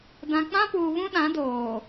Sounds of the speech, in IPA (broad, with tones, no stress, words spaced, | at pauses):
dã˨k͡pã˦puː˨ βũ˦ɗã˨˦doː˨